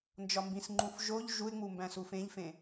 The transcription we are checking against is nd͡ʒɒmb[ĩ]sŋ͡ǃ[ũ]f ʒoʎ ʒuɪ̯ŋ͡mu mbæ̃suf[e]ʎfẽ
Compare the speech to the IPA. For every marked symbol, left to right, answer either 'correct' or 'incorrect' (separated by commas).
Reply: correct, correct, incorrect